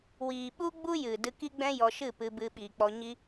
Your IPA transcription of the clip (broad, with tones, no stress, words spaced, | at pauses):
wiː˨ɓu˦ ɡ͡bu˦ jɨ˨ dɨ˧ki˦ɡ͡bɛ̃˦ jɔ˧ʃɨ˦˨pɨ˧ bɨ˧ɓiː˨k͡pɔ˧ ɲi˦